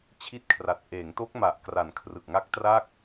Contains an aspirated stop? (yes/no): yes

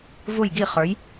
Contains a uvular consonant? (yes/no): yes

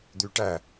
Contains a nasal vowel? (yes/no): no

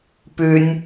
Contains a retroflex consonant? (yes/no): no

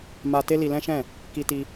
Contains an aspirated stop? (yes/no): no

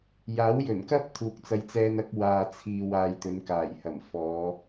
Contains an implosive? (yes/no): no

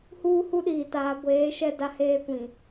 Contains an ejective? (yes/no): no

